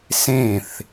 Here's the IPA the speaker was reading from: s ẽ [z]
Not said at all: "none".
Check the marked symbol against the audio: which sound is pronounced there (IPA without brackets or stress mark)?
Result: θ